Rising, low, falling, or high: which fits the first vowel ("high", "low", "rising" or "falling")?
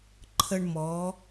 high